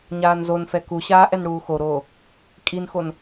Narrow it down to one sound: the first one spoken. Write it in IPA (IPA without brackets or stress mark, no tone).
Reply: ɲ